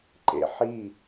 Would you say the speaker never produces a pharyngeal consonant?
no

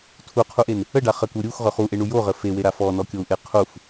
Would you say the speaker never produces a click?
yes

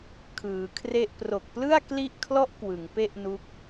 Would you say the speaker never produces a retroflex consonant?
yes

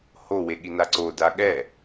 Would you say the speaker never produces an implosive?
no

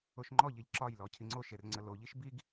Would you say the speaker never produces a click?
no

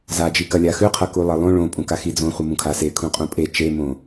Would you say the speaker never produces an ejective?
no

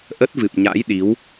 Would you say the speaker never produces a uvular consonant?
yes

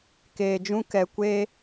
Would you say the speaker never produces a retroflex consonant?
yes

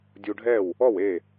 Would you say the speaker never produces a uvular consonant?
yes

